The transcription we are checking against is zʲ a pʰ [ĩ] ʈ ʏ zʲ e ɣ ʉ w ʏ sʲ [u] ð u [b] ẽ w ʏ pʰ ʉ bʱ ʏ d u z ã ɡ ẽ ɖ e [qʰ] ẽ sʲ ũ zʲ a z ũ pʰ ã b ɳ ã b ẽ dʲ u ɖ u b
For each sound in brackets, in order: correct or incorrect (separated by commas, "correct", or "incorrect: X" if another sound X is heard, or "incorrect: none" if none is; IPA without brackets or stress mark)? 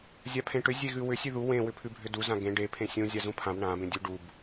incorrect: ẽ, incorrect: ʉ, incorrect: w, incorrect: pʰ